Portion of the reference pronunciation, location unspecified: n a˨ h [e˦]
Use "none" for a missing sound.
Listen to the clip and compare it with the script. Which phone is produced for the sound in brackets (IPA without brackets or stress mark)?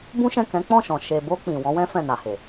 e˨